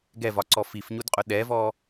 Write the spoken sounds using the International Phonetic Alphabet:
ɡɛvɒǀɔ fifɲudqʼʊ ɗɛvɔ

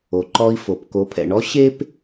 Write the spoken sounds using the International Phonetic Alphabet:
o˩ǃɔ˧i̯fo˩p ko˩˧pʰɛ̰˩ɳɔ˧˥ ɕe˥p

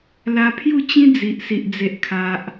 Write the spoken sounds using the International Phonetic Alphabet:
la˧pʰju˥˧t͡ɕĩ˦ d͡zi˨ʔsi˨ʔ d͡ze˨ʔkʰa˨ʔ

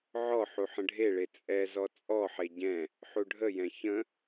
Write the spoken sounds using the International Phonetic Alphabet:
ʕɔħu ħə̃ɖʱeɭe t͡sʼɛ zɔt͡sʼɔħe ɟɛ̃ | ħuɖʱəjɛ̃ çə̃

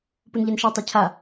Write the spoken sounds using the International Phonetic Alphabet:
punʎɛnʃatˤe cʰa

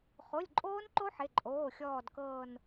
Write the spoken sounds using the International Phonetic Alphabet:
χo˩˧˩lʲǃʼoː˦˥nǃo˦˥ ħɪ˩˧˩ǃʼoː˩˧˩ xʲɔː˦˨dkɤː˦˨n

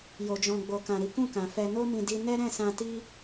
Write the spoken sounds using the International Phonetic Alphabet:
jo˨d͡ʒɔ̃˨ɡ͡bo˨kã˨ ɾi˨˦kũ˦˨kã˨fɛ˧ no˦mĩ˧di˧ nɛ˦ ɾɛ̃˦˨sã˧ti˦

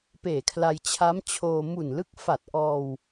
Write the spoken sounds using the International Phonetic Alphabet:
peː˨˩kʰla˧j t͡ɕʰa˦˥mt͡ɕʰoː˧ mu˨˩nlɯ˦˥k̚fa˨˩t̚ ʔɔː˧w

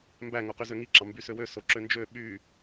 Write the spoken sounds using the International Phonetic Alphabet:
mbæ ŋoqyzøŋi ǁɑmbysøwø soǁønd͡ʒø ɓy

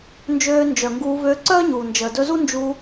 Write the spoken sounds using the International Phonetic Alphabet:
nd͡ʒøː˧nd͡ʒœ˨ŋɡuː˧vø˧ ǀœː˦ɲuː˨ nd͡ʒəː˨dɵ˧zu˦nd͡ʒu˧

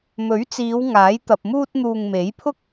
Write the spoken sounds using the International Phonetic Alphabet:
mɵ˨˥ɥt͡siː˨˧w ŋaː˨˥jt̪ɐ˨p̚muː˥t̚ n̪uː˧ŋ me˨˥jpʰʊ˥k̚

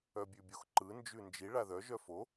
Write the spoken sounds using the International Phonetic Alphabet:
œbʲʉbʲoxǃɯ nd͡ʒʉnd͡ʒi ɭaðœ ʒœfo

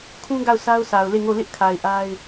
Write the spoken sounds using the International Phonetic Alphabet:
kʰũ˦ ɡa˦˨ʊ̯ sʰa˦ʊ̯sʰa˨ʊ̯ le˦˨ŋo˦˨ lɪ˦ʔkʰa˨ɪ̯ ʔa˦ɪ̯

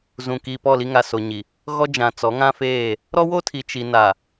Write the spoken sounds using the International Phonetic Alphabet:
zũ˨ki˨pɔ˦˨ li˦ŋa˨ so˨ɲi˨ | ɣɔ˦d͡ʒã˨t͡sɔ˨˦ ŋã˦feː˦˨ | ɾɔ˦wo˦tʰi˨ t͡ʃi˨na˨

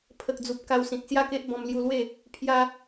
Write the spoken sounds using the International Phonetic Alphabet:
pʰə˨k̚d͡zu˨p̚ ka˧wsĩ˨t̚sja˥˧ke˦ʔ bɔ̃˧m lju˧lwe˥˧ | pʰja˧

